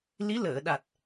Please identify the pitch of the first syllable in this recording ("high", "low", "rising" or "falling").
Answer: rising